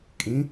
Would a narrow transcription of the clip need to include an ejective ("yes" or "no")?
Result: yes